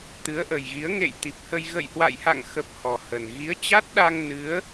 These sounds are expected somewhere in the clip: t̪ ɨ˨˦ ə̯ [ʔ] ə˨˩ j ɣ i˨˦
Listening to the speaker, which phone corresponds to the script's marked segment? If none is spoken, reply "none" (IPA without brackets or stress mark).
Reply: ʔ